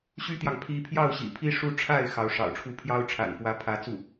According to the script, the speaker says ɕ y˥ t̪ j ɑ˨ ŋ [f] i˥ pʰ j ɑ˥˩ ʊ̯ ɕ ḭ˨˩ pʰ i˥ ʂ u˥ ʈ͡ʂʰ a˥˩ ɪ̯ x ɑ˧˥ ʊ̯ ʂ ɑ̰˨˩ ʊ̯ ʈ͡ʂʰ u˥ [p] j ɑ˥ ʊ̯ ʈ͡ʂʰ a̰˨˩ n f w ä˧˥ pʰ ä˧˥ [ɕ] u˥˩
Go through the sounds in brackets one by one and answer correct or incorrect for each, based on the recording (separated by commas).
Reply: incorrect, incorrect, incorrect